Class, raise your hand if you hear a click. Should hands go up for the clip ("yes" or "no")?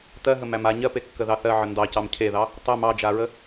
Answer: no